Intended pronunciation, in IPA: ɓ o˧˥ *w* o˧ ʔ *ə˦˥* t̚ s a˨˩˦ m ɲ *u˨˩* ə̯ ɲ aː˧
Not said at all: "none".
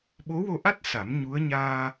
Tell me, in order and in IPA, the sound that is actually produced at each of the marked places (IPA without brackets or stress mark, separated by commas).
w, a˦˥, u˧˥